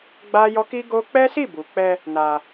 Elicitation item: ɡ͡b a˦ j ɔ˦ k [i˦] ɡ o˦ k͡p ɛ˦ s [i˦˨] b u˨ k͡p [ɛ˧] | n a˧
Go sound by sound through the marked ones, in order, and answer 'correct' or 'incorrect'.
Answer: correct, correct, correct

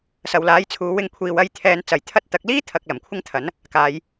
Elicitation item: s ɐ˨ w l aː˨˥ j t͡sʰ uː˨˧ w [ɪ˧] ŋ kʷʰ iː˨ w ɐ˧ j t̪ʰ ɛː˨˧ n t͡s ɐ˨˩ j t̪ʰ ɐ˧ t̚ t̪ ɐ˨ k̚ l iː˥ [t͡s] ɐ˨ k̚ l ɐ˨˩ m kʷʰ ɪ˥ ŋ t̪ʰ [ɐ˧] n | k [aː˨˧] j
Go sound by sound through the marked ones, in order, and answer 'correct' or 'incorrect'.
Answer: correct, incorrect: t̪ʰ, incorrect: ɐ˨˥, correct

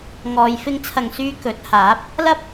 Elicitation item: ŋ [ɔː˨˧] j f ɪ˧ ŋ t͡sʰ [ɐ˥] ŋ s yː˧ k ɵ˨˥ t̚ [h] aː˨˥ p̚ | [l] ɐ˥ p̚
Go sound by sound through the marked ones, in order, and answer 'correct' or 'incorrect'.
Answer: correct, incorrect: ɐ˨, correct, correct

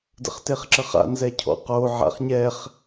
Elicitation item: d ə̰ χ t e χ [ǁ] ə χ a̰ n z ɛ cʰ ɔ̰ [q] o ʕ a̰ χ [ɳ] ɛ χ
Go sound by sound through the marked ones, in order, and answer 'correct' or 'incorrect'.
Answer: correct, correct, incorrect: ɲ

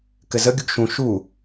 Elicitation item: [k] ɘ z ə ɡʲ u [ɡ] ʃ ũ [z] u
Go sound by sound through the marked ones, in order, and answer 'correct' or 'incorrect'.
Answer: correct, correct, incorrect: ʃ

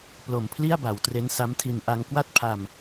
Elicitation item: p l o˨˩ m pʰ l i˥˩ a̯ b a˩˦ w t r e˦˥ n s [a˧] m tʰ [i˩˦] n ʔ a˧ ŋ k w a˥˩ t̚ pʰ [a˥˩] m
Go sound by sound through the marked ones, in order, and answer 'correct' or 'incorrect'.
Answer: incorrect: a˦˥, incorrect: i˧, incorrect: a˧

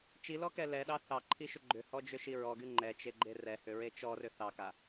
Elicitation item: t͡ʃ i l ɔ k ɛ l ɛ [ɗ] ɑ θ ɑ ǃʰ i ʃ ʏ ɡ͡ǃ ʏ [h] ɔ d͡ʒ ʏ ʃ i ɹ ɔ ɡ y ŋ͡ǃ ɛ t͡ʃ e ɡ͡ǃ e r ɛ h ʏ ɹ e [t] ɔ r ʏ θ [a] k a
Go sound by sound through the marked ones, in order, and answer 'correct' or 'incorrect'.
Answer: correct, correct, incorrect: t͡ʃ, incorrect: ɑ

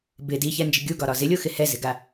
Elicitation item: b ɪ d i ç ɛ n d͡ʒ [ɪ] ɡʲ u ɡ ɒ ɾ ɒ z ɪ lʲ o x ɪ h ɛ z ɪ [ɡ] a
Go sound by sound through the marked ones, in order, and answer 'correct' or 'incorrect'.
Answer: correct, correct

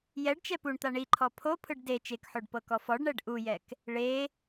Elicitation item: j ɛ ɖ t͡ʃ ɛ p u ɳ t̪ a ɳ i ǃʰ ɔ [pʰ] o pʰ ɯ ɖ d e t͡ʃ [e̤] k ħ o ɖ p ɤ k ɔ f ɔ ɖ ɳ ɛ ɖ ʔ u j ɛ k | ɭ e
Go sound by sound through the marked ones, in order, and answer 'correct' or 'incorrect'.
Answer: correct, incorrect: e

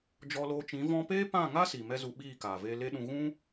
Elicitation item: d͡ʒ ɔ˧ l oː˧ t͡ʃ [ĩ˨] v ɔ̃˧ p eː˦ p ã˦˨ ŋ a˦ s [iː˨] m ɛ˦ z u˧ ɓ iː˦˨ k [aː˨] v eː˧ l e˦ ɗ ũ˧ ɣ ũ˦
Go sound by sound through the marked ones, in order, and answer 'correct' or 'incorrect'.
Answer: incorrect: ĩ˨˦, incorrect: i˨, correct

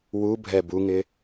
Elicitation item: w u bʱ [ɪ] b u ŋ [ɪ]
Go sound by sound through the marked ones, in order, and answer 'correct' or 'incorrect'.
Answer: incorrect: ɛ, correct

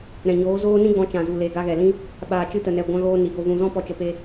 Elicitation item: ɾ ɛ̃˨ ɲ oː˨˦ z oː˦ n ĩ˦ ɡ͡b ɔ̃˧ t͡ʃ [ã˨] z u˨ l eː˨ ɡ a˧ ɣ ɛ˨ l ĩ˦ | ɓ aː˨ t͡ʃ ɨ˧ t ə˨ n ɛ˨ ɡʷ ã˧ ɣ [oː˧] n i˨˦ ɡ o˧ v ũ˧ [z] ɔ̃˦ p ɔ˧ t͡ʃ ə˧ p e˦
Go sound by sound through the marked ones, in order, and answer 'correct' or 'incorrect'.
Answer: correct, correct, correct

